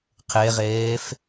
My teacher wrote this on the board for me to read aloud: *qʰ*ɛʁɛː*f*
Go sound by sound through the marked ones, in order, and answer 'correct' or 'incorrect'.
correct, correct

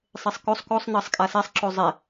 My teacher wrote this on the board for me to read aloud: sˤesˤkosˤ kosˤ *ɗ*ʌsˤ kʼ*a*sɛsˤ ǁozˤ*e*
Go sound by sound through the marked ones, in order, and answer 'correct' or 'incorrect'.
incorrect, correct, correct

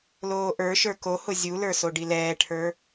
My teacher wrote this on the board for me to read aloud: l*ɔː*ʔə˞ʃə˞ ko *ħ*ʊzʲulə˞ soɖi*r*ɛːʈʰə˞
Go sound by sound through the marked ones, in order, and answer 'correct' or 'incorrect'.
incorrect, incorrect, incorrect

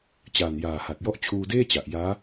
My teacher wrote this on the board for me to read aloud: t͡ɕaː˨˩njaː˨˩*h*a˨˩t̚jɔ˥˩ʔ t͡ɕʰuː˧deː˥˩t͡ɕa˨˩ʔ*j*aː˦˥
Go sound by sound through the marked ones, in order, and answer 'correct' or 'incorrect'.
correct, correct

